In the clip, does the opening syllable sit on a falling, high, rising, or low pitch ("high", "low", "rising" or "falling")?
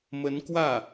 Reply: rising